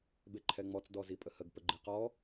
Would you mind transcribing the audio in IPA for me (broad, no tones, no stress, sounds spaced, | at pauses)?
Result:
b e ǃʰ ɛ ŋ͡m ɔ t͡s d ɔ z i pʼ ə h ə ɡ p ə ɡ͡ǃ i q ɔ